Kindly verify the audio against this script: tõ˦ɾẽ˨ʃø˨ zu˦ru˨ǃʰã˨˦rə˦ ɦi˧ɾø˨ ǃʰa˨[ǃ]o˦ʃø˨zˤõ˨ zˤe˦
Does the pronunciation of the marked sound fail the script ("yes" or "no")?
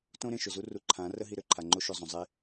yes